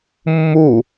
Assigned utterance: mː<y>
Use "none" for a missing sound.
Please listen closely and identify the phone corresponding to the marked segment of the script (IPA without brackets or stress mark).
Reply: u